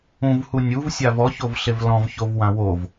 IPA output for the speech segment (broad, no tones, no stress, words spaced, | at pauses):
ũvhu nʲuvsʲav ɔçovɬev lɔ̃vçovwã wov